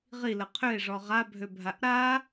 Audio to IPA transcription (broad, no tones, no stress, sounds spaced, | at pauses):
ʁ i l ə qʰ ø e̯ ʐ ɔ ʁ a bʱ ø bʱ a ʔ ɾ a